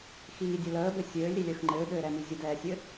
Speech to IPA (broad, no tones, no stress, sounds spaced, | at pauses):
x iː dʲ ə l əː b ɘ sʲ ɘː lʲ ɾ i lʲ əː x ŋ͡ǃ ɘː ɠ ɘː ɾ ɛ m i zʲ ə d ɛː sʲ ɘ